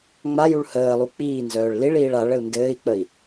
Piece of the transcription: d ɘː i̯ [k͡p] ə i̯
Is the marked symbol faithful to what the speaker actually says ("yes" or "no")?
yes